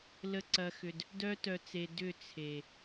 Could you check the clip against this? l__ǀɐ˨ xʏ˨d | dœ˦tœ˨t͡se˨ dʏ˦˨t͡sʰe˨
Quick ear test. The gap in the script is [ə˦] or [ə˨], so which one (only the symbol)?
ə˨